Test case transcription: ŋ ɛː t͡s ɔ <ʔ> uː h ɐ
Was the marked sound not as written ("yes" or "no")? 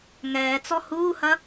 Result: yes